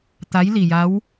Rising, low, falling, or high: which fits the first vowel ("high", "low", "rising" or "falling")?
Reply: rising